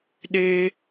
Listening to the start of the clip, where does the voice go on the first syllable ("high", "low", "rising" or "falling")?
high